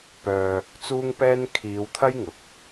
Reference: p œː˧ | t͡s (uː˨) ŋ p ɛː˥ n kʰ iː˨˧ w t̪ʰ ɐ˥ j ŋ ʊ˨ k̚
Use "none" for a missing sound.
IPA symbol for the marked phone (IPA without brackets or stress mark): uː˥